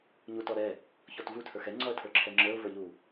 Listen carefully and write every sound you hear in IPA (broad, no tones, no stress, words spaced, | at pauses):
ɲutɔɾɛ | çɔtvu tʰə˞xɛ ŋ͡ǀɔə̯tʰə˞ǁʰɛŋ͡ǁə˞ʊ̯ və˞ʎu